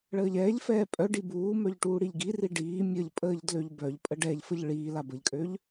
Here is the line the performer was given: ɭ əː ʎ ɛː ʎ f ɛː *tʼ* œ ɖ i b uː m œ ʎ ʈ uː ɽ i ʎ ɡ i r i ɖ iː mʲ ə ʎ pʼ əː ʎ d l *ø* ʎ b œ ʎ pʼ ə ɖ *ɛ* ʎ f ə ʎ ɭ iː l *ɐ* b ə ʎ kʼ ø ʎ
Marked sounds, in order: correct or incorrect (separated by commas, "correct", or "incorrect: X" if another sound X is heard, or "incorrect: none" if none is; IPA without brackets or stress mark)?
incorrect: pʼ, correct, correct, incorrect: a